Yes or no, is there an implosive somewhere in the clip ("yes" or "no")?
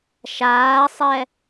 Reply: no